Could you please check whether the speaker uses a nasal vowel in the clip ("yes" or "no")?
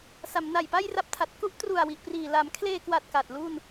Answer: no